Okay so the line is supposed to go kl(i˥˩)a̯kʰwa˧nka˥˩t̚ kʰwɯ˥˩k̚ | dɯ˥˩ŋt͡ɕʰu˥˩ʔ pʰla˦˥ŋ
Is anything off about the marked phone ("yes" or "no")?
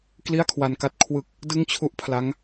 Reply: no